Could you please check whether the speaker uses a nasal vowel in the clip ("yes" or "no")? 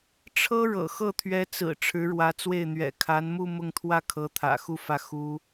no